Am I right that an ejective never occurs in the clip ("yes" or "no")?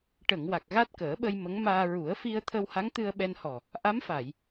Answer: yes